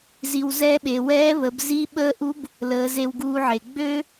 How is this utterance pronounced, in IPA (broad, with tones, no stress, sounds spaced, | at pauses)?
z i˩ w z ɛː˧ ɓ e˩ w ɛː˧˥ β ə˩˧ b z i˧˥ ɓ əː˧˥ ʔ u˧˥ b | l əː˩˧ z e˧ w ɡ uː˧ ʕ e˩ ɡ͡b ø˥